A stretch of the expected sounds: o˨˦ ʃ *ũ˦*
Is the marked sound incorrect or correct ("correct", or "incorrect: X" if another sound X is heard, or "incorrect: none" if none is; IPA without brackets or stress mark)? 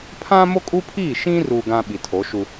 incorrect: u˦